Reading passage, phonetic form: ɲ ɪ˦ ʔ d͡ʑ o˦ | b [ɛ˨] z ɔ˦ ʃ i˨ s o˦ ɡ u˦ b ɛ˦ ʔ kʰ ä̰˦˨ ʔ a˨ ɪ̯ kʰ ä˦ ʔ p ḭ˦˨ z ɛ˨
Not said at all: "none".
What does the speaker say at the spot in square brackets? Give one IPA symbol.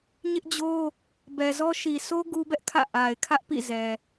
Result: ɛ˨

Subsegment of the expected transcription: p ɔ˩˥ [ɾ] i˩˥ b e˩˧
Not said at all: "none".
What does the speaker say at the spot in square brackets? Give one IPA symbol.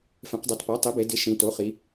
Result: tˤ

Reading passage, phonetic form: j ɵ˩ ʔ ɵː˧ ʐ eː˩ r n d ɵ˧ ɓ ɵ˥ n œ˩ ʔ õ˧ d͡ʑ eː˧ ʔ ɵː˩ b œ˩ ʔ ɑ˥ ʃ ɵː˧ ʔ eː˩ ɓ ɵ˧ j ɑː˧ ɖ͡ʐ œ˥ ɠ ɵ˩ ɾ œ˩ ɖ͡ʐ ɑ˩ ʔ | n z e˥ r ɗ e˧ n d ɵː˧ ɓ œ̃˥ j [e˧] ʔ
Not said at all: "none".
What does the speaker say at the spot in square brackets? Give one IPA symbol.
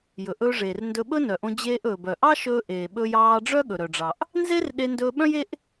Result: e˥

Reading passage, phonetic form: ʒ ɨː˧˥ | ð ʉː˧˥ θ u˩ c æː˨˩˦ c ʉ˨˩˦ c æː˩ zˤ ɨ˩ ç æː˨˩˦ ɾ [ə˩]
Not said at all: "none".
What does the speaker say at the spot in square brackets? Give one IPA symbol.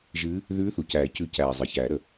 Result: ə˩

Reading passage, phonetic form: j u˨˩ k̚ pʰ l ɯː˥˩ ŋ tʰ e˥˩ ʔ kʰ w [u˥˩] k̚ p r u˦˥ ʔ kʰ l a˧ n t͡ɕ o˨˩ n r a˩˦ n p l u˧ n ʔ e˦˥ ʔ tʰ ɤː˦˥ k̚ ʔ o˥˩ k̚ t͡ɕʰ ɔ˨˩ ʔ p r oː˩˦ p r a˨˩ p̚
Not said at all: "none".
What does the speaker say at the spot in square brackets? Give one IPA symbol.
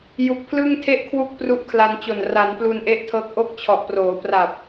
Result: u˥˩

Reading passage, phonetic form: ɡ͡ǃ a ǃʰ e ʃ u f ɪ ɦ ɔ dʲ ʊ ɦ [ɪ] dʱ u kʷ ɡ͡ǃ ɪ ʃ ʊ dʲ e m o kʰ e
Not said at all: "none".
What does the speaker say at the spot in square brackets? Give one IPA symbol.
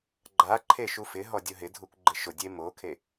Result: ɪ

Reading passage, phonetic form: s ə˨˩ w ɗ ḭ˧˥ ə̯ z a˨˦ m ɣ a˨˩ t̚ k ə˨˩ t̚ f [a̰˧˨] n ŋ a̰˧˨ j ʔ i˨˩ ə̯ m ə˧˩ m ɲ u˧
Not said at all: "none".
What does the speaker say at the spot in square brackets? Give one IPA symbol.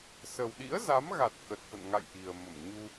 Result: ə̰˧˨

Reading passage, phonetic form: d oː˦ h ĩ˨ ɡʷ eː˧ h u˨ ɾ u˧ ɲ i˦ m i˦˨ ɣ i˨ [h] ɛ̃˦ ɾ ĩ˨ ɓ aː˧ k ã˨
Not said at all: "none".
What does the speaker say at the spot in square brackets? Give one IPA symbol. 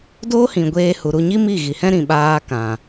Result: h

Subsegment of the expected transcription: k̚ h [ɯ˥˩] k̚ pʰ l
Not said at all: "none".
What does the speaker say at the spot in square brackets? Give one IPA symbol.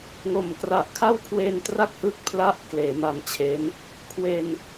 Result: ɯ˥˩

